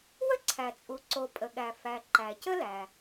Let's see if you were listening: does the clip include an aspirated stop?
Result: yes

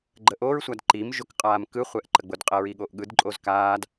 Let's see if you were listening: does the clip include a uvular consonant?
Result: yes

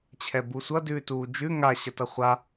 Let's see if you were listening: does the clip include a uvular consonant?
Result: yes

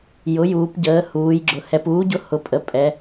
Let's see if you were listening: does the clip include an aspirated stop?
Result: no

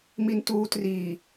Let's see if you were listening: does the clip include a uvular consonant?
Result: no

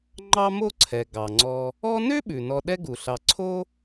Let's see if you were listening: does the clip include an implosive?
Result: yes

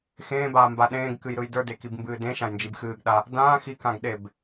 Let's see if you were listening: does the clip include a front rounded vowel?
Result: no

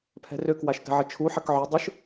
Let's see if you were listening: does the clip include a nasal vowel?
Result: no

